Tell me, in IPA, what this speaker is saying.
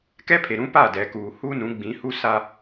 kɛ˦pʰe˨ɾũ˦pa˦˨ dɛ˨kuː˨hu˦ nũ˨˦ɡ͡bĩ˨˦hu˦sa˦

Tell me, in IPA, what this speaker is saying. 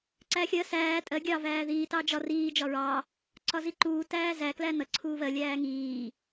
ǀæːxʲɜ sæː tʼɜ ɡʲɑ væːðiː tɑd͡ʒɒ riː d͡ʒɒɹɑ | ǀɒziǃuː tæːzæ klænʌ ǀʰuːvɜ lʲæːŋiː

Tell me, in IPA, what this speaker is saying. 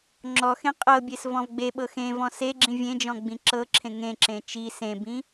ŋ͡ǁɔxẽ qʼɤbʲes vɔ̃vɡ͡beɓɤ xẽvɔ̃ seɡ͡ǁĩ vʲẽd͡ʒɔ̃ ɡ͡bĩǁɤǁʰẽ ŋẽǁẽ t͡ʃi sẽbĩ

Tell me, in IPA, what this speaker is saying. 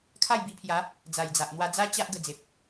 kʰa˥˧jbi˧pʰja˨˦ | d͡za˨˩jd͡za˨ʔ n̪wa˧d͡za˦ t͡ɕa˦ʔ ɡə˧d͡ze˨p̚

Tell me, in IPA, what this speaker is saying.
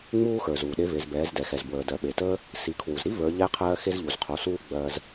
ŋ͡muː˧xə˞˩z uː˩ɗe˧˥ve˩˧zbɛː˩˧z dɛ˩xɛ˩zbwəː˩ dɜ˩ɓe˩təː˥ | si˩˧kʰwu˩zɾi˥ və˞˩˧ʎɛ˧˥qʰɜː˧ xe˧zʎu˩zqʰo˩˧suː˧ ɡ͡bɜː˧z

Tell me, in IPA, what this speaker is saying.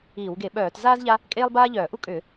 iː˧˩˧wɡe˧˩˧ɓœː˧˩˧tzaː˥z ʎa˥ | kʼeː˥lˠbaː˥ʎœː˧˩˧ ʔu˥kʼʏː˧˩˧

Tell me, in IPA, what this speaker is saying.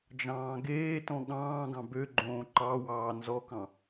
d͡ʒɑ̃ːɡeːtɔ̃ ɠɑ̃ːɡɑ̃ bøɡ͡ǃõː ǃɑ wɑːnzɔkɑ̃

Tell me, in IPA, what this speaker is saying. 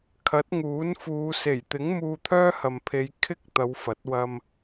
kʰɐ˨˥t̚ŋuː˨˥nfuː˨˧ se˨˩jt̪ɪ˨˥ŋ muː˧t̪ʰœː˥hɐ˨mpʰe˨˧j kʰɪ˥k̚ t̪ɐ˨˧wfɐ˨˥t̚ wɐ˧m

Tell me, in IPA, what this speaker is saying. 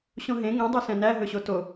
ɕõɦẽ ŋɛ̃ dˤesɛ̃næ ɦɵɕoto

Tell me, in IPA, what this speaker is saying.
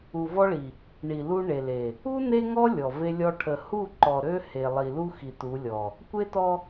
u˨vɔ˦ɭi˨ | ɳi˨lu˦ɳe˨le˨ | u˦ ne˦ŋɔ˦ lʲɔ˨ve˦lʲɔ˦ ʈʰə˨hu˦˨ ǃɔ˨ɾø˦ he˨lˠi˨lu˦xi˨ tu˨˦lʲɔ˨ | kʷe˦tɔ˦

